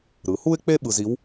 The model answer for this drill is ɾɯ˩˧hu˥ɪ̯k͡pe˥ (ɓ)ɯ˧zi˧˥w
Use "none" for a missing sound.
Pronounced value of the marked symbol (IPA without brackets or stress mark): ɓ